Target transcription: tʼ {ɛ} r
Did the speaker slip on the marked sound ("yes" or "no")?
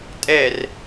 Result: no